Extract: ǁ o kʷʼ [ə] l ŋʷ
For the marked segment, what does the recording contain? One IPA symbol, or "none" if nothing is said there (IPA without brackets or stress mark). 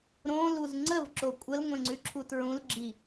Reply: ə